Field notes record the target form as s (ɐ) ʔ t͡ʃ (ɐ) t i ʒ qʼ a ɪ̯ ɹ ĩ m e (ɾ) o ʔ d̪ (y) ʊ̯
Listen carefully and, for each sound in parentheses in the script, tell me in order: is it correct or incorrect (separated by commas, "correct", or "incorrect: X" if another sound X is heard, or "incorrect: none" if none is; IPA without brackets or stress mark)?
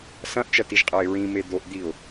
incorrect: ɐ̃, correct, incorrect: d̪, incorrect: i